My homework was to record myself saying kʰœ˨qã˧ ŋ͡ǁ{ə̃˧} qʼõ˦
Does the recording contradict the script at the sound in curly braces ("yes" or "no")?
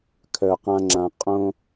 yes